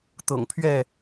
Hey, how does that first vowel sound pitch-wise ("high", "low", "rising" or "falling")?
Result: low